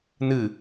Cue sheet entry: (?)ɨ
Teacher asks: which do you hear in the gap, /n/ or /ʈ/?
n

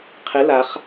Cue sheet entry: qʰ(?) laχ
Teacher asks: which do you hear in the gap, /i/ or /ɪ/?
ɪ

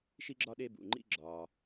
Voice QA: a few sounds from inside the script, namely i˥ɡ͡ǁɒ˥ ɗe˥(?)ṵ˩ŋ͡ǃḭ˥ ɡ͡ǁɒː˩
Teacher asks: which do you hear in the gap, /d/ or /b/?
b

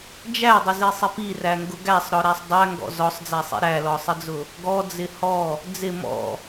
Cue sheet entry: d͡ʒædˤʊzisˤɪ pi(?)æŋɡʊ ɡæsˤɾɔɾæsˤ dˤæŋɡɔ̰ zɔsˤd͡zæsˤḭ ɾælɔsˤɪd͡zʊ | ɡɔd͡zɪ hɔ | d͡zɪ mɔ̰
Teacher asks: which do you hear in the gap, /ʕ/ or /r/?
r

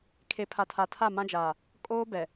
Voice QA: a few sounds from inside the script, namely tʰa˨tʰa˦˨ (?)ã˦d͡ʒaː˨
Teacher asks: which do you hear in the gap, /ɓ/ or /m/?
m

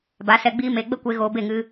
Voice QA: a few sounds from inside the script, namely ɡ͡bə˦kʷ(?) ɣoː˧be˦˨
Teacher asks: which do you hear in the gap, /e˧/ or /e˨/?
e˧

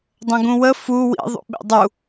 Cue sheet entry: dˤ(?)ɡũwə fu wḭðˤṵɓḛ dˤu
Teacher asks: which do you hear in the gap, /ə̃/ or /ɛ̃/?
ə̃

